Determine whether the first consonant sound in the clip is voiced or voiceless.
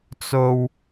voiceless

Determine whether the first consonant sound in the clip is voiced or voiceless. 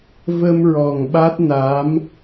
voiced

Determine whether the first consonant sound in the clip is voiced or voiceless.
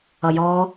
voiced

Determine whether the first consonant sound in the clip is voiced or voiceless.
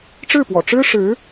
voiceless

